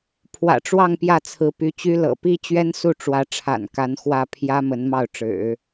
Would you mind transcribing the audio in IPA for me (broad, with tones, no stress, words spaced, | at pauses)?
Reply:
pʰwä̰˨˩ʈ͡ʂwɑ˥˧ŋ pjä˥˩t͡sʰɹ̩˧˥py˧˥t͡ɕy˥ lɤ̰˨˩pi˥ t͡ɕɥɛ˥nsu˥˩ʈ͡ʂwä˧˥ ʈ͡ʂʰa̰˨˩n ka˧˥nxwä˥˩ pʰjä˥ mə˧˥nmɑ˥˩ʊ̯ʈ͡ʂɻ̩˨˩˦